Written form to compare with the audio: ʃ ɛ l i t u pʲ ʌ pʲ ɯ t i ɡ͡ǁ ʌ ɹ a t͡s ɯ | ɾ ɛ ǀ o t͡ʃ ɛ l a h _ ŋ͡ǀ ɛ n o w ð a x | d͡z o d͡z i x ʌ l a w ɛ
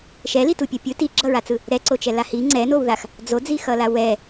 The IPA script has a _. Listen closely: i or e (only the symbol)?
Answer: i